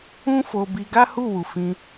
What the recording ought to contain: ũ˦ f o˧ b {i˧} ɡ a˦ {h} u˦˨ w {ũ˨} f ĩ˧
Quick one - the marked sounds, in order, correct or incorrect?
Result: correct, correct, incorrect: u˨

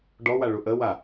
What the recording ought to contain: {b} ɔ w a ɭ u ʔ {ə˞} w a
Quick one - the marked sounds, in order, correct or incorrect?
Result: incorrect: ɖ, incorrect: ə

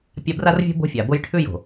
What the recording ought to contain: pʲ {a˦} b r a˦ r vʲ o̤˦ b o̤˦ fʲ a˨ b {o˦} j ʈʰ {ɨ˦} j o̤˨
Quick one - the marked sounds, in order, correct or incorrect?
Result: correct, correct, incorrect: ʉ˦

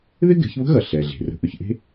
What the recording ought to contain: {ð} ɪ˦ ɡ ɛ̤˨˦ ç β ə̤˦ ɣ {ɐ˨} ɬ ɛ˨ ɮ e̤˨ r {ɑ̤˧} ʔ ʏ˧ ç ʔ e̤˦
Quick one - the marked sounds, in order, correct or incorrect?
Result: correct, correct, incorrect: ə̤˧

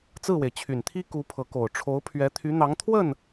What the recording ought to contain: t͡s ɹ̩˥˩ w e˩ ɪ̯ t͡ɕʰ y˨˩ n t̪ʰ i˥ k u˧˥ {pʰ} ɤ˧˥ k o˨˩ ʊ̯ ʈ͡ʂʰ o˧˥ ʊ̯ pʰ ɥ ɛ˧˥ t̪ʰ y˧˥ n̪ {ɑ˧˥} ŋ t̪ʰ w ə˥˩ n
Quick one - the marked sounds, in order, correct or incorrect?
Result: correct, correct

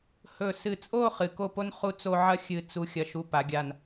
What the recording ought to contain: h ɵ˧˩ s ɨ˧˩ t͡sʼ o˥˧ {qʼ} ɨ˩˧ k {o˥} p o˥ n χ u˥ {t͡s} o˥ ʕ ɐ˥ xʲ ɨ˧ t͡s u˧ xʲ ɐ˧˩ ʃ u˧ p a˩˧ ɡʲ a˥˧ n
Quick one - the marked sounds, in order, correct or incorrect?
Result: incorrect: χ, incorrect: o˥˧, correct

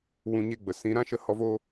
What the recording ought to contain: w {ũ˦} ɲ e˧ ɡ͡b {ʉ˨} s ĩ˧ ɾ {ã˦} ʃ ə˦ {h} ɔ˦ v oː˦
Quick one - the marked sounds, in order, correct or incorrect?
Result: incorrect: ũ˧, incorrect: ə˨, correct, correct

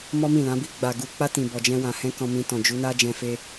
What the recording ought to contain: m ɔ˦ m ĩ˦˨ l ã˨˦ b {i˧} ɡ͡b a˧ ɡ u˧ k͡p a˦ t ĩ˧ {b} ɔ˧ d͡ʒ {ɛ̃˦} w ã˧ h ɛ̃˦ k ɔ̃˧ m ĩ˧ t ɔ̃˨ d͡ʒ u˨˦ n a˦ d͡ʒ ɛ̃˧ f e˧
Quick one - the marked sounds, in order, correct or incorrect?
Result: incorrect: i˦, correct, correct

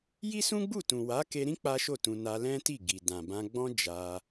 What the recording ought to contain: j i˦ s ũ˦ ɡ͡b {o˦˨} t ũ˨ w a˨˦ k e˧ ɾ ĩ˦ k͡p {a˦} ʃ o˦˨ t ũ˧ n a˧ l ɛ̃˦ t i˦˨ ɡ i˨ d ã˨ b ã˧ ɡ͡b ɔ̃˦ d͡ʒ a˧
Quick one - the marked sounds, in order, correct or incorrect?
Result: incorrect: u˦˨, correct

